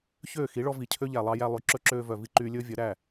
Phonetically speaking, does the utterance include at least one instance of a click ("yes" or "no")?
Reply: yes